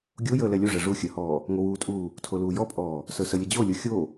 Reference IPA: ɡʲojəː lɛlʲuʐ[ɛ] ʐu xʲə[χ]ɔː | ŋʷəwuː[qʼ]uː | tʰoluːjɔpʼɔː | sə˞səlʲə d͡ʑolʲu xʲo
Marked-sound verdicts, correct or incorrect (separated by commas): correct, incorrect, incorrect